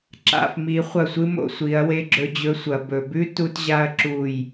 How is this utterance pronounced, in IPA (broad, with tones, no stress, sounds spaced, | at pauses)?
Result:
ǁ a̰˨ f m i˨˦ χʷ ɐ˦˨ sʷ ɨ˦ m o̰˨˦ sʷ i˨˦ ɐ̯ w e˧ ɡ͡ǁ ɵ˧ d͡ʑ ɵ˧ sʷ ɐ˨ b ɵ˨ b ʉ˦ t u˦ t ʑ a˦ ɐ̯ ǁ u˦˨ j